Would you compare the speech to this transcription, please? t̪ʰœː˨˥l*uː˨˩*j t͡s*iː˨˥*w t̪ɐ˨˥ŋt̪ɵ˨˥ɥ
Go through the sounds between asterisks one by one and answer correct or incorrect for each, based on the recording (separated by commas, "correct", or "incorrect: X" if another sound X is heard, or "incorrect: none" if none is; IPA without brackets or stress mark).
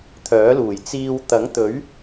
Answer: correct, incorrect: iː˧